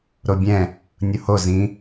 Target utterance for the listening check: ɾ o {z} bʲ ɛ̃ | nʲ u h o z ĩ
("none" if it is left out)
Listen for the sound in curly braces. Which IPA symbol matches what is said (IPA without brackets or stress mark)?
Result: none